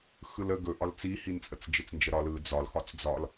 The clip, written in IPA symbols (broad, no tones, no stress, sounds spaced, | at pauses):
x ɯ l ə ɡ ɵ ʔ ɒ l t͡s i h i n t͡sʼ ə t͡s d͡ʒ ɪ t͡s n d͡ʒ ə ɾ ɒ l ɯ d͡z ɒ l x ɒ t͡s d͡z ɒ l